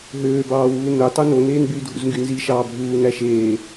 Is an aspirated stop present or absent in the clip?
absent